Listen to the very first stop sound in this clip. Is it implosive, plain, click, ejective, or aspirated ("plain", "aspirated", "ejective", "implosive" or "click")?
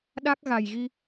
implosive